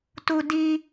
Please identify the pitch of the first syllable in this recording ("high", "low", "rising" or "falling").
high